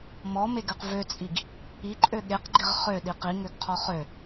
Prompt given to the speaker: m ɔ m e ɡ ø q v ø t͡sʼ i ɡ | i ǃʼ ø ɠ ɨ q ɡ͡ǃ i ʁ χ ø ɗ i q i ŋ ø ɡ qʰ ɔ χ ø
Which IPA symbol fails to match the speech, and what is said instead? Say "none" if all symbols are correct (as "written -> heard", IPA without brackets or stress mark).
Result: ɨ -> e